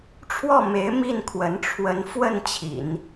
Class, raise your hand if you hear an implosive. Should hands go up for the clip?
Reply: no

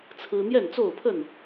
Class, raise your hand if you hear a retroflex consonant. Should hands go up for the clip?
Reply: no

